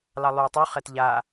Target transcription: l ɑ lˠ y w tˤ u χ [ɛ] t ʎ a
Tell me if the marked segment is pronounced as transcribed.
yes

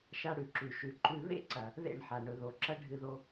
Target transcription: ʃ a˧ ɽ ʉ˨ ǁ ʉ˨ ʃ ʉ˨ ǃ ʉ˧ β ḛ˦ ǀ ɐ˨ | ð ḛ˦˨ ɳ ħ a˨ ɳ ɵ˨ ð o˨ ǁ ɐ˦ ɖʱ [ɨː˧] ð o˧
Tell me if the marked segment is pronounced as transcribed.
no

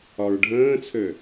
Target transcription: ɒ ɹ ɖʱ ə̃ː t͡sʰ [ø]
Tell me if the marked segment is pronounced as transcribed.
yes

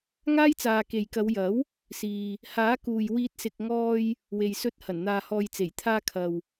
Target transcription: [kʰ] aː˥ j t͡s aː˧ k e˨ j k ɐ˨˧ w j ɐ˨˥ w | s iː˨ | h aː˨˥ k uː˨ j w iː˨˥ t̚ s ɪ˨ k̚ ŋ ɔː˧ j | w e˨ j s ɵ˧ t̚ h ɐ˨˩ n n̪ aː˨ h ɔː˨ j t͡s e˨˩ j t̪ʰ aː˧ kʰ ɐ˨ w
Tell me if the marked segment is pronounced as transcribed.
no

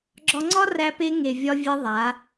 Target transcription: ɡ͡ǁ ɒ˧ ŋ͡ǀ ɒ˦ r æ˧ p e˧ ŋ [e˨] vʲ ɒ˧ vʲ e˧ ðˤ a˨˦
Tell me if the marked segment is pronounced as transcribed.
yes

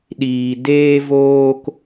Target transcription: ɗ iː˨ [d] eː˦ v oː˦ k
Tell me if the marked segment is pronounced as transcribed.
yes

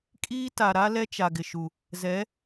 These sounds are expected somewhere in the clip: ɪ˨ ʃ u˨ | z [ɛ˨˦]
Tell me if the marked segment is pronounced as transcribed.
yes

